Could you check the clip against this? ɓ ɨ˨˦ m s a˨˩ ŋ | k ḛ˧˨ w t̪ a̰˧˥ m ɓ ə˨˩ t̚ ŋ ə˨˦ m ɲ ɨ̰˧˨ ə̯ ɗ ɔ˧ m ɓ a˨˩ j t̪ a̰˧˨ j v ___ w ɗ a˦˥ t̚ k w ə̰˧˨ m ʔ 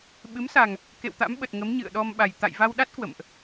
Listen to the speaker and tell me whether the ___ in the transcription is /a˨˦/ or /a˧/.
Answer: a˧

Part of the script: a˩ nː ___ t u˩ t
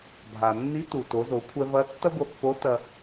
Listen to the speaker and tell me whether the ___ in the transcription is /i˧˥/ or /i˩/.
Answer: i˧˥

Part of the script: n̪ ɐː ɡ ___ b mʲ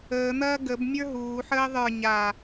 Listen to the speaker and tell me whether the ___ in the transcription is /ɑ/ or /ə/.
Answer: ə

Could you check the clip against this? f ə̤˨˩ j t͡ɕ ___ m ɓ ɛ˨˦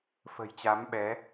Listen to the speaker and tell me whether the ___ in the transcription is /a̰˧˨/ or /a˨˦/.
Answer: a˨˦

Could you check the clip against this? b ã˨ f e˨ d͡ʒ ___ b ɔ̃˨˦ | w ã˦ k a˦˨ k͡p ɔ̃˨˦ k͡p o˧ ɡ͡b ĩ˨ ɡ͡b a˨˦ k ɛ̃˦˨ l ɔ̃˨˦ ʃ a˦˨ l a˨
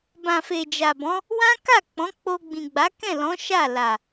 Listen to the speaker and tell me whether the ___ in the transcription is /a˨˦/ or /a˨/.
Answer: a˨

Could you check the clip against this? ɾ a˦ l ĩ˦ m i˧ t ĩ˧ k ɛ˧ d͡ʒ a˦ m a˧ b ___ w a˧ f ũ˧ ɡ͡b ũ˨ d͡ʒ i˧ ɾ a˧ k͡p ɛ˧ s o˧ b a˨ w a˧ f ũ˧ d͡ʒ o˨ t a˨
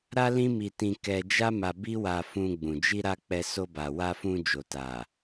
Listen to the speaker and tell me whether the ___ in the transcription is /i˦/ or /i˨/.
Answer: i˦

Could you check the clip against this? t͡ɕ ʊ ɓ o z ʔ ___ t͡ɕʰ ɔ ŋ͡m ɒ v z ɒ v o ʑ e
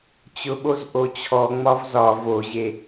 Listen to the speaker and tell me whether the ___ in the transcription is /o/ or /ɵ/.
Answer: o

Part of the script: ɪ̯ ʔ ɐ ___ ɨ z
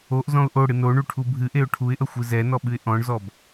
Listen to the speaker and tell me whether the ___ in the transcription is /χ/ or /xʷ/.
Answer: xʷ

